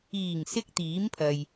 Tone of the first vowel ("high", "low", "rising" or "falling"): low